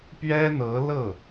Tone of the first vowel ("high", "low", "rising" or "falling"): high